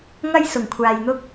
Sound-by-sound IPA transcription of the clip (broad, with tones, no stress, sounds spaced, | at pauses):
ŋ ɐ˥ j s ʊ˨˩ ŋ kʷʰ aː˨ j n̪ ʊ˥ k̚